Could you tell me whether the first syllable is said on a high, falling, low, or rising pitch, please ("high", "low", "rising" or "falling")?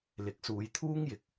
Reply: rising